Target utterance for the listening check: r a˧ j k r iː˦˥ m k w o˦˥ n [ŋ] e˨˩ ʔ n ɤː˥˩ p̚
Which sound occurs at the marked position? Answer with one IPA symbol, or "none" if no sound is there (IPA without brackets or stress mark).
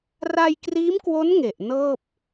ŋ